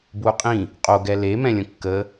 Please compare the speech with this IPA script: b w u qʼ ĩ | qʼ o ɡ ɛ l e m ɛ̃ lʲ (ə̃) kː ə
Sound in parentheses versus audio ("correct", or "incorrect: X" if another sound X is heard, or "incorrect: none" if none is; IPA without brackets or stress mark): correct